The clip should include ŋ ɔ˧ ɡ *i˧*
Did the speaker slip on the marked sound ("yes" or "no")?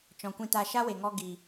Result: yes